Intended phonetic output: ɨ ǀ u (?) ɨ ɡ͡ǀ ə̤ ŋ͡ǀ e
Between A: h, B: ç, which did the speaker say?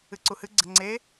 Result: A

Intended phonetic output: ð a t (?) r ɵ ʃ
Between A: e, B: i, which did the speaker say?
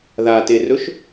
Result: A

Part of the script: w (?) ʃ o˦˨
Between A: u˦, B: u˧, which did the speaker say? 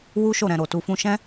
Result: A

